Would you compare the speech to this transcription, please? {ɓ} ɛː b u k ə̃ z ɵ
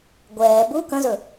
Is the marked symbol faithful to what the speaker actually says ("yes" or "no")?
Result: no